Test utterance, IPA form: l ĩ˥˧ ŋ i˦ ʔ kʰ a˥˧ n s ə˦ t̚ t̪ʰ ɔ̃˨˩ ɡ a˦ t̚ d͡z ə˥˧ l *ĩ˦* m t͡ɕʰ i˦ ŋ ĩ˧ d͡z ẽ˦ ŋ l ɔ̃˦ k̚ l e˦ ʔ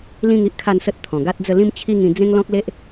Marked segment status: correct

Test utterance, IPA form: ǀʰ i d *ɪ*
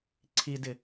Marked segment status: correct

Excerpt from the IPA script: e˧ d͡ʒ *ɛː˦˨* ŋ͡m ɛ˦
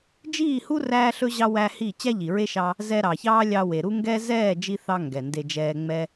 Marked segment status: incorrect: ɛː˧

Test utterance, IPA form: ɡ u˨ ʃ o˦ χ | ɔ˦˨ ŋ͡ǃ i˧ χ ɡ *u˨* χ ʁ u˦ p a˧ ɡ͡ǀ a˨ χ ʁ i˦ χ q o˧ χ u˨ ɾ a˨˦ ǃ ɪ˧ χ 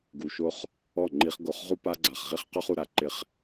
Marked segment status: incorrect: o˨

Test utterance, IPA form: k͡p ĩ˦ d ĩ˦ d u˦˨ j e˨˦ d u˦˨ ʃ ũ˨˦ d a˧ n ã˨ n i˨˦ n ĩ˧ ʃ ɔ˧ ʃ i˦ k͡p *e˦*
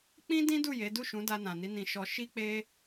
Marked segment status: correct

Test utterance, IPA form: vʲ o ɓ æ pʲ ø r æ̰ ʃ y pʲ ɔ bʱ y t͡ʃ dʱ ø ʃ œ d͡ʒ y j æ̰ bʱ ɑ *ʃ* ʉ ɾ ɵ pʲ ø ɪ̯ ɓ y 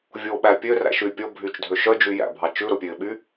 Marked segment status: incorrect: t͡ʃ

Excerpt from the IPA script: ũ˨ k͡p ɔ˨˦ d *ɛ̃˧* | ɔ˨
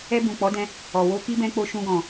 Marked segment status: correct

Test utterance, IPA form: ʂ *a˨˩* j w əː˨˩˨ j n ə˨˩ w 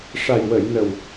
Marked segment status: correct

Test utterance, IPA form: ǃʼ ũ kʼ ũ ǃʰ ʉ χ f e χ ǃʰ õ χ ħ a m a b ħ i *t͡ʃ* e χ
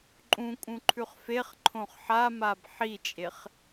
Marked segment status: incorrect: t͡ʃʼ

